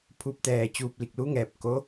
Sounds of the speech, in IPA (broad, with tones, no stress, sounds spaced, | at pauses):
pʰ uː˧˥ p̚ t̪ ɛː˧ t͡ɕ uː˧ p̚ l i˧˩ k̚ l u˧˥ ŋ ɛː˧ p̚ k o˧˥